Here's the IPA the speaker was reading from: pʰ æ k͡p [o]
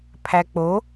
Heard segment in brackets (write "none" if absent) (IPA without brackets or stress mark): o